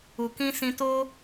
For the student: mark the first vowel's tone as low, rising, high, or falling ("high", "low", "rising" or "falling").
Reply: low